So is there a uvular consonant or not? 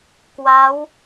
no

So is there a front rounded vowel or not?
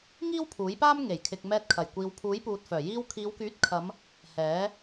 yes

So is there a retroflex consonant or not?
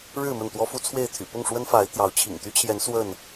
yes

